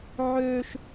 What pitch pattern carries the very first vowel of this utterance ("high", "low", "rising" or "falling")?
high